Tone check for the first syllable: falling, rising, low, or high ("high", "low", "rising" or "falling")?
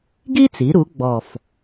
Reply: high